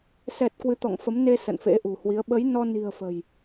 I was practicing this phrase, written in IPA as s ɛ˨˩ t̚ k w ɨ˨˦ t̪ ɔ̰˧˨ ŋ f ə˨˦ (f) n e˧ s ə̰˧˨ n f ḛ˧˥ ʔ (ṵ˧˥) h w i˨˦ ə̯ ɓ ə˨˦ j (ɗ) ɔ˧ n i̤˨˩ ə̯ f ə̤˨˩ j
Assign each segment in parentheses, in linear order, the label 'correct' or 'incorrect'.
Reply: incorrect, incorrect, incorrect

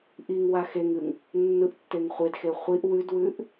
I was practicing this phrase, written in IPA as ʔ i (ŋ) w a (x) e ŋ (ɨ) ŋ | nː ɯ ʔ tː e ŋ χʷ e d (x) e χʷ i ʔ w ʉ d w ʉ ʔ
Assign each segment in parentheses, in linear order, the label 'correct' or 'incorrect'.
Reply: correct, correct, correct, correct

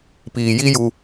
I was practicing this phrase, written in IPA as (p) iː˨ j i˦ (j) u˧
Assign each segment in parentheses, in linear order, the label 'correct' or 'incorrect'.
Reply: correct, correct

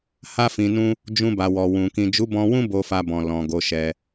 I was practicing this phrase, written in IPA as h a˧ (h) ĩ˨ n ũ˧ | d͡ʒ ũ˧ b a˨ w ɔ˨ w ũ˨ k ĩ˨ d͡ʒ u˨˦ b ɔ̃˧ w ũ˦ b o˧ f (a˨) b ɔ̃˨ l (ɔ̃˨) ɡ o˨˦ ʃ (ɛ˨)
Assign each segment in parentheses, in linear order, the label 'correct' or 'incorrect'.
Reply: incorrect, incorrect, correct, incorrect

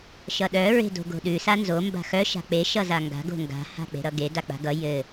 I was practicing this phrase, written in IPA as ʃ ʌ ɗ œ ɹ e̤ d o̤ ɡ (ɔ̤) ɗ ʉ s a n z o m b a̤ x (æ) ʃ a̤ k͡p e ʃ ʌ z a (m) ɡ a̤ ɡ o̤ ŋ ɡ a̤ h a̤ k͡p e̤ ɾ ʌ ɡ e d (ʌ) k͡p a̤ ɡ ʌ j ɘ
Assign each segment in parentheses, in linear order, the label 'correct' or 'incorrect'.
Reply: incorrect, incorrect, incorrect, incorrect

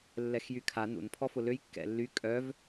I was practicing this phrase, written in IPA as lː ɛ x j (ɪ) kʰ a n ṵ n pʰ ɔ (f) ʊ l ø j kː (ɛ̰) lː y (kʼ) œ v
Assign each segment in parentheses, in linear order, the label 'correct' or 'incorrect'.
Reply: incorrect, correct, correct, correct

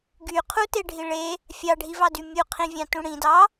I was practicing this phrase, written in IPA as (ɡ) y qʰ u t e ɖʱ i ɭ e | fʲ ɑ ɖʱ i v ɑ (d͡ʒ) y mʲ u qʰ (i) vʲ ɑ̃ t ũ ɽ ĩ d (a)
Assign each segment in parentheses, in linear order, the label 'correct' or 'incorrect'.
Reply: correct, incorrect, incorrect, incorrect

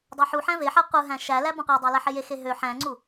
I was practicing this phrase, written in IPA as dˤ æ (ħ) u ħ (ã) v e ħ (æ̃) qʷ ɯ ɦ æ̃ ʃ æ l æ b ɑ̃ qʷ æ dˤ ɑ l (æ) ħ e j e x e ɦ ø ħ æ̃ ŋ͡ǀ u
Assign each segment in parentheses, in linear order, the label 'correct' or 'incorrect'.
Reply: correct, incorrect, incorrect, correct

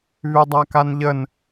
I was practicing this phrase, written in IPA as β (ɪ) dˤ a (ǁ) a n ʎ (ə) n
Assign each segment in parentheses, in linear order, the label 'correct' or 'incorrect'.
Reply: incorrect, incorrect, correct

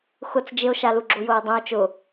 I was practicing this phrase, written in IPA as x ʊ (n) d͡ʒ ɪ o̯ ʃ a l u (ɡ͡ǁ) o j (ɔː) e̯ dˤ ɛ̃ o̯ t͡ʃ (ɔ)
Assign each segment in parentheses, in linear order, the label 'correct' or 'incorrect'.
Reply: incorrect, correct, incorrect, incorrect

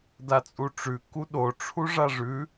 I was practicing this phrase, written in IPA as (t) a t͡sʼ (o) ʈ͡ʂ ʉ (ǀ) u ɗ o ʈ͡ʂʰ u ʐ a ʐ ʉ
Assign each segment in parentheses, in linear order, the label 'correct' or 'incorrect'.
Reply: incorrect, incorrect, incorrect

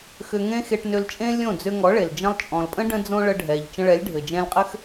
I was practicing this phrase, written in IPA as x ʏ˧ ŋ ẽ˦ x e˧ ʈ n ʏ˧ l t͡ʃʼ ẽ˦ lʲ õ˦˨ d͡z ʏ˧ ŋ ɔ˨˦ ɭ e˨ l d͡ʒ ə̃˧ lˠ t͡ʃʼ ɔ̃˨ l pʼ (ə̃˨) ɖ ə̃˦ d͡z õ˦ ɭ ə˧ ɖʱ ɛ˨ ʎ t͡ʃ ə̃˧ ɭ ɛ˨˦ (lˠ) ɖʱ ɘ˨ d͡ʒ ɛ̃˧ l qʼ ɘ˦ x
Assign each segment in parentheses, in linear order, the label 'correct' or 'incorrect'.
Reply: incorrect, incorrect

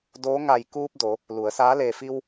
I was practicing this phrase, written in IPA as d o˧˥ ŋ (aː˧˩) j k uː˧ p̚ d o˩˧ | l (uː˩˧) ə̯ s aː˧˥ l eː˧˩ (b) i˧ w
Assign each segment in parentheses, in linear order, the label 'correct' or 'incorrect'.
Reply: incorrect, incorrect, incorrect

